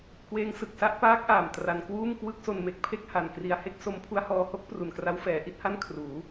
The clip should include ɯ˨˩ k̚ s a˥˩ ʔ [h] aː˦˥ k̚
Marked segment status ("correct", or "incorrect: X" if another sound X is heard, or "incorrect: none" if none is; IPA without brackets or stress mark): incorrect: p